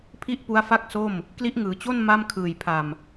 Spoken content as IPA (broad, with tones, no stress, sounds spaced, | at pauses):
pʰ i˥˩ ʔ p u˦˥ a̯ f a˥˩ k̚ s o˥˩ m | k l i˦˥ ʔ ŋ ɯː˩˦ t͡ɕ o˥˩ n m a˥˩ m kʰ ɯː˨˩ j pʰ a˨˩ m